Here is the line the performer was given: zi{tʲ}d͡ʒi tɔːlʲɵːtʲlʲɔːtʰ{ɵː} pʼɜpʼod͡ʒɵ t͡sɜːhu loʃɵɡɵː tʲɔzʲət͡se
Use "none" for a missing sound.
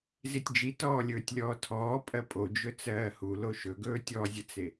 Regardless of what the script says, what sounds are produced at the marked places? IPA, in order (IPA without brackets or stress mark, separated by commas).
tʲ, ɔː